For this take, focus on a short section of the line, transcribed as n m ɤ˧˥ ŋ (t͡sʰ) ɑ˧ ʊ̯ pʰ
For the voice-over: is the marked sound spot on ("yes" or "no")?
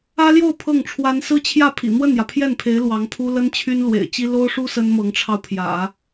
no